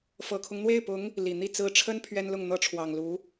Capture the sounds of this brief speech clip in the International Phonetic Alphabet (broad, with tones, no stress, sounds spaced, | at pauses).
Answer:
f ɤ˨˩ kʰ ʊ˦ ŋ n̪ w e˥˩ ɪ̯ p ʊ˧˥ ŋ | l i˨˩ n̪ i˥˩ t͡s ɹ̩˧˥ ʈ͡ʂʰ ə˥ n pʰ ɥ ɛ˥ n l ʊ˥˩ ŋ n̪ ɤ˥ ʈ͡ʂʰ w ɑ˨˩ ŋ l u˧˥